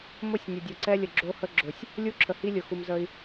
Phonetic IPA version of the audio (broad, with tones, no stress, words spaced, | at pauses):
mʊ˦˨sʲnʲə˨ dʲʊ˨ǀɛ˦lʲə˨ ɡ͡ǁo˦hə˦ ɡ͡ǁʊ˨sʲ | lʲu˦ǁʰə˨hi˦lʲʊ˨ xu˨m zə˦i̯